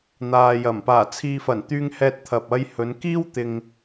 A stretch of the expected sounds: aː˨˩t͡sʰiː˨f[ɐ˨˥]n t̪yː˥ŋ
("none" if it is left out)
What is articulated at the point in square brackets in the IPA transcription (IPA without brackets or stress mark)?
ɐ˨˩